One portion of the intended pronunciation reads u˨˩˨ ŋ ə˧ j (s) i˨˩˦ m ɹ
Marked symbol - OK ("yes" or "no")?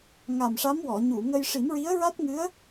no